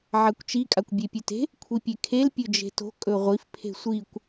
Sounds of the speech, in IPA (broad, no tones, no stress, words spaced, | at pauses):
ʕakʷt͡ʃi kʼakʷbʲepʲʉte̤ | kʷʰipʲekʰel pʲɵd͡ʒe̤to̤ kʼɵʁʷif pʰe̤sʷikʷ